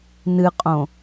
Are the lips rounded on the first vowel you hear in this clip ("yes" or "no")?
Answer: no